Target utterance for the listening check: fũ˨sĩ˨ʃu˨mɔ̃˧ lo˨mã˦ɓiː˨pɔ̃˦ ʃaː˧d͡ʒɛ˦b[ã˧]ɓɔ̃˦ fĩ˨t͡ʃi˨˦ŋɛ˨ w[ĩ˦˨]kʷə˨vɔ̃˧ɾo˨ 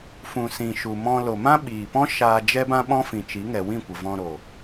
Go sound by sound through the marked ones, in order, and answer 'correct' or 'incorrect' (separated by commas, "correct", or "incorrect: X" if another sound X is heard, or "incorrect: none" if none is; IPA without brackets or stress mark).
incorrect: ã˦, correct